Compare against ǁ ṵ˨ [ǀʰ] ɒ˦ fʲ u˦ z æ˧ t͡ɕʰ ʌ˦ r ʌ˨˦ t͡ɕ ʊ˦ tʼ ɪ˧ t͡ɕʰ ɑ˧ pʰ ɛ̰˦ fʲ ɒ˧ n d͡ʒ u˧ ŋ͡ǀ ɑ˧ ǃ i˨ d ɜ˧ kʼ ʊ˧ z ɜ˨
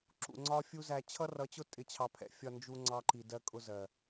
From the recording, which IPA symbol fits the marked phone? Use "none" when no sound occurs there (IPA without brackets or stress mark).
ŋ͡ǀ